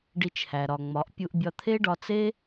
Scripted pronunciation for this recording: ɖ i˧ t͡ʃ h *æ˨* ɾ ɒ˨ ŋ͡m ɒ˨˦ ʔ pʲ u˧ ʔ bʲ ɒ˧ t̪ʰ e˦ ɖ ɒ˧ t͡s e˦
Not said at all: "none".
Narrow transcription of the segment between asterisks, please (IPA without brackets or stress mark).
æ˨